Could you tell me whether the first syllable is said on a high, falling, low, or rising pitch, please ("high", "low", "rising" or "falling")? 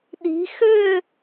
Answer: rising